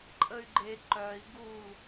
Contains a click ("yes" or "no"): yes